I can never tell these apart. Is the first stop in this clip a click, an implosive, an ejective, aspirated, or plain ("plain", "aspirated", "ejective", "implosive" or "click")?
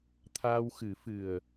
aspirated